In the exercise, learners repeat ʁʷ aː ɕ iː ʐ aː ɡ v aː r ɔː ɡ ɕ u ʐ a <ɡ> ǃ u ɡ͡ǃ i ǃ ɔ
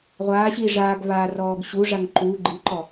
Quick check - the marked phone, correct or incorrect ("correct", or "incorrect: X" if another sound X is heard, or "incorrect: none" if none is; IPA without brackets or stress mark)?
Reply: incorrect: ŋ